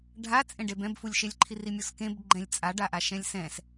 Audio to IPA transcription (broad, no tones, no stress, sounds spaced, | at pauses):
ɖʱ a t͡sʼ ẽ ɖ e b ɛ̃ b f u lʲ ʃ e lʲ ǃʰ i r i mʲ o s k ẽ b ɡ͡ǃ ɛ̃ lʲ t͡sʼ a ɖ a ʔ a ʃ ɛ̃ lʲ s ɛ̃ s